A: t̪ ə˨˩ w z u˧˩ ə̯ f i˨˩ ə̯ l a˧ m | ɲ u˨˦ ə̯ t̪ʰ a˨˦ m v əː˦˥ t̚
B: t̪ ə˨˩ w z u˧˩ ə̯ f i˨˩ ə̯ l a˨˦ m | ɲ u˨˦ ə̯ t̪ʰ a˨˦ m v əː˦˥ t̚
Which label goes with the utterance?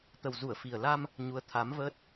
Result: A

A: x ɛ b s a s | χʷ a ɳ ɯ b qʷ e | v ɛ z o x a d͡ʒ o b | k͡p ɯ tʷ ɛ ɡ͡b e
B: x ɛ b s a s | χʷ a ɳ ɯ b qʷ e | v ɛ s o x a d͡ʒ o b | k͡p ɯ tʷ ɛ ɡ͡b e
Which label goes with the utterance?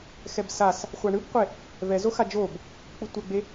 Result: A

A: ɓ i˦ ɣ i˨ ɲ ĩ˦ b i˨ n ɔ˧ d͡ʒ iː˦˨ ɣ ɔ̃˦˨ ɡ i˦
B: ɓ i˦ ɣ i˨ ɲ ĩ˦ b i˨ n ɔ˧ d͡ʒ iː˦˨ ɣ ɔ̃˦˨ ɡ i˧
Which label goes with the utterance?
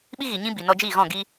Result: B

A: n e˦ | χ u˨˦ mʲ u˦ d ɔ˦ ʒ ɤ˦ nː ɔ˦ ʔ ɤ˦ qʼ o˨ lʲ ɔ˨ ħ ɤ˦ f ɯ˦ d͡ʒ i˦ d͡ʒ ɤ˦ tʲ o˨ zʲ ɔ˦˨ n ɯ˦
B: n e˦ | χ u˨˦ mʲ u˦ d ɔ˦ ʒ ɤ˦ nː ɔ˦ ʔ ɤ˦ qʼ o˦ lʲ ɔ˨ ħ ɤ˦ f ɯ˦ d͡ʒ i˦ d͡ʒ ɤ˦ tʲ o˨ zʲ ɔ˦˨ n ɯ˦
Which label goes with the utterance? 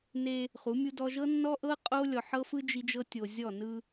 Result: B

